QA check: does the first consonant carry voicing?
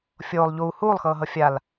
no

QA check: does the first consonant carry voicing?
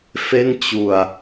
no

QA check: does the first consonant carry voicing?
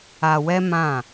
yes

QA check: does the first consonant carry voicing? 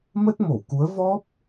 yes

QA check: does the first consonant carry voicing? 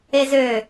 yes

